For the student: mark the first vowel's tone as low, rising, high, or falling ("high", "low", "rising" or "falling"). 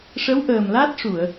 rising